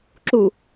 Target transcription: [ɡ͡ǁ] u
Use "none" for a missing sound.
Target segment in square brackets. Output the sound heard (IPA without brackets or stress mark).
ǁ